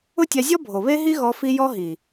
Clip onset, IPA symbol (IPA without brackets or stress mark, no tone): ʊ